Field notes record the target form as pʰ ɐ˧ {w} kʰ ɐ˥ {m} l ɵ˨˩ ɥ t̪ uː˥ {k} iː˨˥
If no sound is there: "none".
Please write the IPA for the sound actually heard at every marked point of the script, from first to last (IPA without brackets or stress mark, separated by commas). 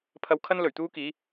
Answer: w, n, k